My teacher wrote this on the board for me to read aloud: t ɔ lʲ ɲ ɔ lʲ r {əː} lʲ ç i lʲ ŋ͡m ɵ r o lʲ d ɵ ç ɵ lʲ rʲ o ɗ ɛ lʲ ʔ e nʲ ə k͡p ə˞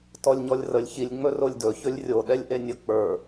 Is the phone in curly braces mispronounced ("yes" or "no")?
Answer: yes